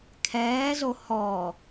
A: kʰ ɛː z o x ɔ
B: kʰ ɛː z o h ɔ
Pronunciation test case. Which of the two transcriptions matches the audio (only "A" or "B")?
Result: B